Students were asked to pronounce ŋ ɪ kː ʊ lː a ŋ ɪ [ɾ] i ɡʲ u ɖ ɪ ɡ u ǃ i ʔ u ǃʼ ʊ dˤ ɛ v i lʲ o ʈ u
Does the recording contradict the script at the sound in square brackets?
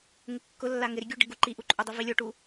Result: no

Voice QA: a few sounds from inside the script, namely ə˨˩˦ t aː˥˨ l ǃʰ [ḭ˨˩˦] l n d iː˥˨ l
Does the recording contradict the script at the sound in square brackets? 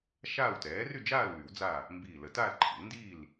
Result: no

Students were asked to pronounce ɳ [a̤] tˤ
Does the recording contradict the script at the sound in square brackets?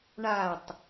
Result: yes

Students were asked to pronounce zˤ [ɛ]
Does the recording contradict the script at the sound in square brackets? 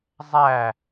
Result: yes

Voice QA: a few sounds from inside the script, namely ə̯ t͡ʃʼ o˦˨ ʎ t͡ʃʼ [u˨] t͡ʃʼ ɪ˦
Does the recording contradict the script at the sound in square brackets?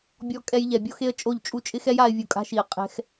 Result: yes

